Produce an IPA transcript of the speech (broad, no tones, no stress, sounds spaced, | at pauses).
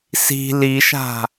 s i̤ l i ʃ a̤